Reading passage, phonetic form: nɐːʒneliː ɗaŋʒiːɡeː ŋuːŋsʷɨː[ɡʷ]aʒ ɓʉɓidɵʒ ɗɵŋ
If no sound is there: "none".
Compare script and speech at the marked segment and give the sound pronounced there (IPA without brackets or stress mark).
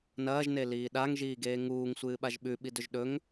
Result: ɓ